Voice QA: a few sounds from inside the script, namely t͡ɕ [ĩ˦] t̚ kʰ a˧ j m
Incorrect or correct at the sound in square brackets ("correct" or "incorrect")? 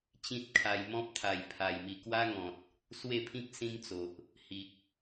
correct